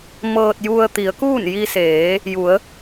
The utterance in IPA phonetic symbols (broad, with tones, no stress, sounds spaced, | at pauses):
m ɤː˧ t̚ j u˧ ə̯ t̪ i˩˧ ə̯ k uː˥˨ n j i˧ s eː˩˧ | j u˩˧ ə̯